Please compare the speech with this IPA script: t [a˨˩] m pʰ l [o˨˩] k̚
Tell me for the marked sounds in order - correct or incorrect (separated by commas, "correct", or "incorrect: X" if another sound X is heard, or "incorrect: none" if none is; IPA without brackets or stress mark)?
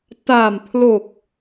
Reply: incorrect: aː˨˩, correct